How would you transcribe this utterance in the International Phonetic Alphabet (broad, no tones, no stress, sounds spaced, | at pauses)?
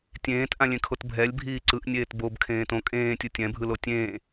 tʲ ẽː t ʔ ã lʲ ẽ kʰ o t bʱ ɛ lʲ bʱ iː ǀ ɯ ʔ nʲ eː t b o b kʰ ẽː t õ kʼ ẽː tʲ ɯ tʲ ɛ̃ bʱ ɯ l o tʲ ẽː